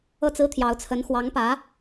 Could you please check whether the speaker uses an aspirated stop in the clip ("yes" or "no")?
yes